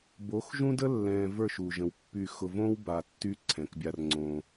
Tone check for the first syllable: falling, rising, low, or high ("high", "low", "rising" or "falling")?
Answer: rising